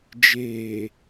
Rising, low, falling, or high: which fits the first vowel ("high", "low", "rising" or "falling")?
low